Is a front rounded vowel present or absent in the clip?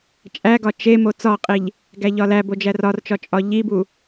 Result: absent